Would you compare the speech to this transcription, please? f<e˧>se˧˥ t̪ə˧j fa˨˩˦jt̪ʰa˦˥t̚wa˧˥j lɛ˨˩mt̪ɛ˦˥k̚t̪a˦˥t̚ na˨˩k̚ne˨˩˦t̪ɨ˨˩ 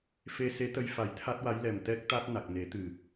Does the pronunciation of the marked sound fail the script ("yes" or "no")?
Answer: no